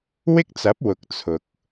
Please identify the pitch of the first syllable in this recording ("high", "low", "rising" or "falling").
high